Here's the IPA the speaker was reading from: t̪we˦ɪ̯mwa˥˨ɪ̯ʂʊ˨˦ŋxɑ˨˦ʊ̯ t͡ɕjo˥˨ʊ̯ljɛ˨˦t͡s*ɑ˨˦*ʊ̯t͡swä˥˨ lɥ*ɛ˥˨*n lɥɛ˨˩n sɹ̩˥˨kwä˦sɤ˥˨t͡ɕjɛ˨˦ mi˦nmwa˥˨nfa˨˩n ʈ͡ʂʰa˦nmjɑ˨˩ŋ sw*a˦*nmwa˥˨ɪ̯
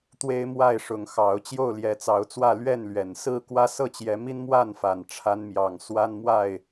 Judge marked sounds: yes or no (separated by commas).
yes, yes, yes